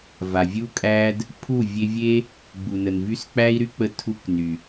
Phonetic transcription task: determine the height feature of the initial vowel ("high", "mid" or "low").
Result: low